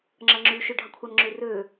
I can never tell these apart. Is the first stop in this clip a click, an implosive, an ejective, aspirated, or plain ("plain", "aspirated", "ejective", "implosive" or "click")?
click